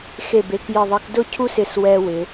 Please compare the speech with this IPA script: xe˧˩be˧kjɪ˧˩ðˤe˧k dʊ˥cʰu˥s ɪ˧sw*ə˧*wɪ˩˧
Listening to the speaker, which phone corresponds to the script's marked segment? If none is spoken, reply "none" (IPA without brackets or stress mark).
ɛ˧